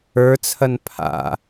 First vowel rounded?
no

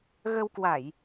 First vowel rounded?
no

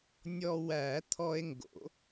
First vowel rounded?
yes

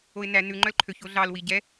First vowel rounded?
yes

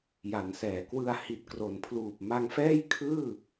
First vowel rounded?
no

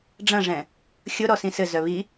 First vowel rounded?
no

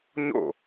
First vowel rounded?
yes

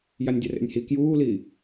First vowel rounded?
no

